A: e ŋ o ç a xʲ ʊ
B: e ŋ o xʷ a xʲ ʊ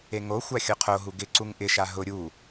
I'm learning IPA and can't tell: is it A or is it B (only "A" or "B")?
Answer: B